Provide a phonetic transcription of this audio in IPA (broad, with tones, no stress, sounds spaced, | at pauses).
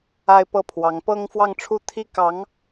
a˥ ɪ̯ p ɤ˥ pʰ w ɑ˧˥ ŋ p ɤ˥ ŋ f w ɑ˥˧ ŋ ʈ͡ʂʰ u˥˩ t̪ʰ i˥ k ɑ˧˥ ŋ